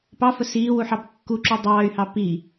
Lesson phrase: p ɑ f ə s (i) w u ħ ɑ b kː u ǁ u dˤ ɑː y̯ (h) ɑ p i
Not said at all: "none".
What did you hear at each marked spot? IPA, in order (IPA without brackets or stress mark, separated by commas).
iː, h